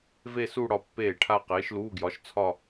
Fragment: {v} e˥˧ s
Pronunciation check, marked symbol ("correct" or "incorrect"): correct